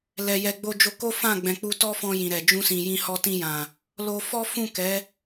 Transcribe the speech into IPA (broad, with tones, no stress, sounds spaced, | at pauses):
l ɛ˨ j ɛ˨ ɡ͡b o˧ d͡ʒ o˧ k o˦ f ã˦˨ ɡ͡b ɛ̃˨ k͡p u˧ t ɔ˦ f ɔ̃˧ j ĩ˨ ɾ ɛ˨ d͡ʒ ũ˧ s ĩ˨ j ĩ˧ h ɔ˧ t ĩ˧ j ã˨ | l o˧ f ɔ˦ f ũ˦˨ k ɛ˨˦